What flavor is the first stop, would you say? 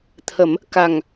aspirated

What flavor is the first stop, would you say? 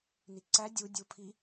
click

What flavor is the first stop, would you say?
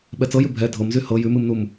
implosive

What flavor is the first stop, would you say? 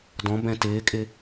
plain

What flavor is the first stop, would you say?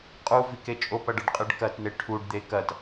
ejective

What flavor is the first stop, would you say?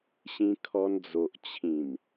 aspirated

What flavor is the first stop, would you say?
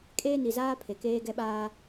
ejective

